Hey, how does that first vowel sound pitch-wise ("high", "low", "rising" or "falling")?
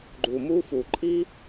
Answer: low